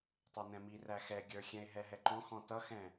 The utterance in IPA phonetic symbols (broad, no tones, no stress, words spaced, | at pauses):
tˤɛnɛ̃miræ xɛɡʲə˞xʲɛ̃e̯ ɦɛɦɛǃɔ̃ xɔ̃tʌxɛ̃